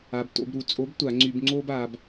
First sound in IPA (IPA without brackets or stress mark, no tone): a